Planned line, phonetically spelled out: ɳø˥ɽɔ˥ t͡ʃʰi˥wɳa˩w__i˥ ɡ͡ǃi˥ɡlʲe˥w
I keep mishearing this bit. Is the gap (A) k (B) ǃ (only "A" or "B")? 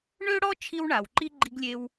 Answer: B